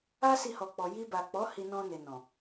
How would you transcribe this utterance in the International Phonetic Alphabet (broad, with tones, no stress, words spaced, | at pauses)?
a˦si˧ hɔ˨k͡pɔ˨ ji˧ba˨k͡pɔ˨˦ hi˧nɔ̃˧ne˨ nɔ̃˨